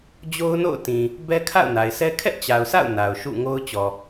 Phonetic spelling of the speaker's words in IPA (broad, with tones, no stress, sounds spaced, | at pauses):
d͡ʑ o˦ ʊ̯ n o̰˦˨ ʊ̯ t ĩ˨ | b ɛ˦ kʰ a̰˦˨ ʊ̯ n a˨ ɪ̯ sʰ ɛ˦ kʰ ɛ˦ ʔ t͡ɕ a˨ ʊ̯ s a̰˦˨ ʊ̯ n a˨ ʊ̯ ʃ ṵ˦˨ ŋ o˦ ʊ̯ t͡ɕ ɔ˨